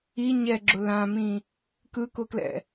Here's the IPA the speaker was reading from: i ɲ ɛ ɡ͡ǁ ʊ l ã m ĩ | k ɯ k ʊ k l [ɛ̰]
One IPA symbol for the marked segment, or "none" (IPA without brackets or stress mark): ɛ̰